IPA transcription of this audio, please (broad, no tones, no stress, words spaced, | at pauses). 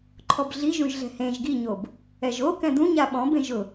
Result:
ǃʰɔbɮiʒũʒ ɮɛ̤hẽʒ ɡiɲob | ɛʒokɛ̃ d̪ũɲa ɓɔ̃ bẽʒʊ